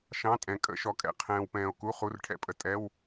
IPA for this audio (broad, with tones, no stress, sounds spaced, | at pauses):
ʃ ɑ̃˧˥˧ tʼ ɛ̃˨ kʼ ə̰˧˥˧ ʃ ɔ˨ kʼ ɛ̰˨ qʰ ɛ̃ː˨ w p ɛ̃ː˨ o̯ k u˧˥˧ χ u˧˥˧ r ʈʰ ɛ̰˨ pʼ ə˨ tʼ ɛ˧˥˧ w